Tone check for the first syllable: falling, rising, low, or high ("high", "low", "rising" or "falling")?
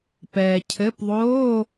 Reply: low